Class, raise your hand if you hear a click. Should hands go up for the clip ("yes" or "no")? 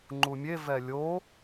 yes